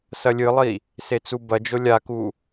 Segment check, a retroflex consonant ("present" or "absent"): absent